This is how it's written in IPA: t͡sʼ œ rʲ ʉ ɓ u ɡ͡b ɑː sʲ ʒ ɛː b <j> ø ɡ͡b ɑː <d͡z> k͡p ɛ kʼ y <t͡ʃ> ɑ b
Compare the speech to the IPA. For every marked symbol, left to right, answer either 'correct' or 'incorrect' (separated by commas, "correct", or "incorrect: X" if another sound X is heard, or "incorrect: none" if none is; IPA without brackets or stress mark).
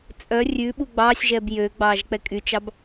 correct, incorrect: ʒ, correct